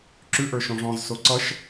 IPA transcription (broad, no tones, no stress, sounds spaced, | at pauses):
ǁ ʉ ʔ ə˞ ʃ ɔ̃ ʐ ɔ̃ z s o ǀ ʌ ʃ